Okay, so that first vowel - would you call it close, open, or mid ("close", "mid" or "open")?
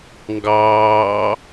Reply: open